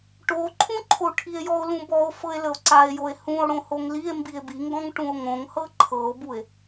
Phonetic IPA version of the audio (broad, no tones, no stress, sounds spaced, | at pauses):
ʈ o ǃʰ ũ ǃʰ o ʈʰ i e̯ j ɔ o̯ l ũ b ɔ o̯ f ɤ e̯ l ə o̯ ǀ a e̯ j o e̯ h ũ o̯ ɽ õ h o ŋ l i e̯ m b i e̯ b i ŋ ɡ ɔ̃ ŋ ʈ ũ o̯ ŋ õ ŋ h ɤ ǃʰ ɤ o̯ b u e̯